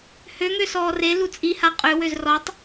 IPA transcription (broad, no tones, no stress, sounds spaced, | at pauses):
h ø ŋ ø s ɔː r e l u t͡sʼ i h a qʼ ø w ø z r ɔ tˤ